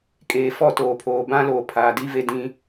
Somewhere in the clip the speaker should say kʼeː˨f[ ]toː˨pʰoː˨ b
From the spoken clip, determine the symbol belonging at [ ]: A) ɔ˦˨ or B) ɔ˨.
A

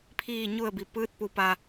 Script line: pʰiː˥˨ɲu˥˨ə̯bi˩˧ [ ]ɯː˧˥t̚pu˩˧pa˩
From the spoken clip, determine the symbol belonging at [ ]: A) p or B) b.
A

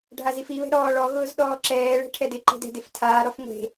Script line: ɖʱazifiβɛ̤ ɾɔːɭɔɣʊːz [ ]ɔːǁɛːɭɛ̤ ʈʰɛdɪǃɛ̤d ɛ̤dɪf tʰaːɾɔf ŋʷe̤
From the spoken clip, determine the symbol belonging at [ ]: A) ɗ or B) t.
A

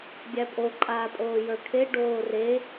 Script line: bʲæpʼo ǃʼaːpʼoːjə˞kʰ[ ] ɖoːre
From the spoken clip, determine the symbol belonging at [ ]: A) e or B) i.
A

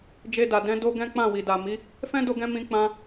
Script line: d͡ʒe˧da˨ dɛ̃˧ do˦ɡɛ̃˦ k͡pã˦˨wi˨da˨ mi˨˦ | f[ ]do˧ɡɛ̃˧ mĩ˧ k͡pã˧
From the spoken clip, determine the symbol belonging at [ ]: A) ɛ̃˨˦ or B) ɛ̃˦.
B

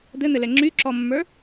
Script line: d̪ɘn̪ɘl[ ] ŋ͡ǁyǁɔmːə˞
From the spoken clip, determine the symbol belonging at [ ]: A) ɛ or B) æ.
A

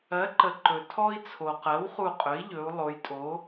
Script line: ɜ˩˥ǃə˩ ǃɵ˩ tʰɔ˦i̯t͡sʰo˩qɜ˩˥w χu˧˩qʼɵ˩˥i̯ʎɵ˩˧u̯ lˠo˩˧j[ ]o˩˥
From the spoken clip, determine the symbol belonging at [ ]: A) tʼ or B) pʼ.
A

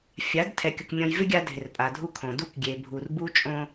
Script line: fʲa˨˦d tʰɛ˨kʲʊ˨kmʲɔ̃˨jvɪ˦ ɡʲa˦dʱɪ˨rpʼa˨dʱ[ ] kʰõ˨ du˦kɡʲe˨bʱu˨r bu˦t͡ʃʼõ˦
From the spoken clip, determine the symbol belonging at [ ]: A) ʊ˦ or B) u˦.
B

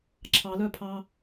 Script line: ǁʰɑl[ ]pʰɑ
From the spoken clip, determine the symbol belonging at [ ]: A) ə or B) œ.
B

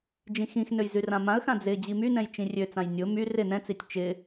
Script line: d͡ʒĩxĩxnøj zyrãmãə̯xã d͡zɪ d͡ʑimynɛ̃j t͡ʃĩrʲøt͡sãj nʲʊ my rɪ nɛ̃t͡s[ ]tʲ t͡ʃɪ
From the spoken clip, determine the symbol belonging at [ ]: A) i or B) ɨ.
A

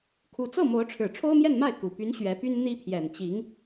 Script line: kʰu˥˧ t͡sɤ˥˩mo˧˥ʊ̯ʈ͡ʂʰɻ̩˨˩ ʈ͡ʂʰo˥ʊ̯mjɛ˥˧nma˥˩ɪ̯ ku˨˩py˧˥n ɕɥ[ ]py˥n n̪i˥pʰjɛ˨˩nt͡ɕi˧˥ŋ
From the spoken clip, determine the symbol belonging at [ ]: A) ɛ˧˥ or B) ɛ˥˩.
A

